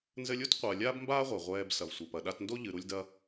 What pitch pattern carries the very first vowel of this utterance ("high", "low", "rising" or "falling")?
high